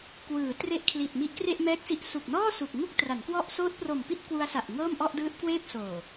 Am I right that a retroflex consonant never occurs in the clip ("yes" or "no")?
yes